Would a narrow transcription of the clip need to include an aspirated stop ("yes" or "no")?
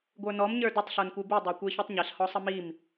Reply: no